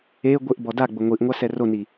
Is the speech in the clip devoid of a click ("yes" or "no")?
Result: yes